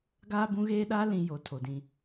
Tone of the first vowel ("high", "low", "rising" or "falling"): high